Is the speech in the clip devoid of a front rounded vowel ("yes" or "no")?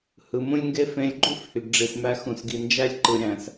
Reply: no